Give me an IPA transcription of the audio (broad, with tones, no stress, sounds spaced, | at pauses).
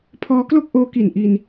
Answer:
pʰ ɔː˦˥ k l o˥˩ k̚ ʔ oː˦˥ k i˨˩ n ʔ i˧ n